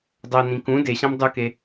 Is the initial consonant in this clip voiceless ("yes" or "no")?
no